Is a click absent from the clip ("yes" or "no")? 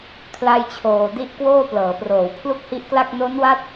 yes